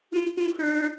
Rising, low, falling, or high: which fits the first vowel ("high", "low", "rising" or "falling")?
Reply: high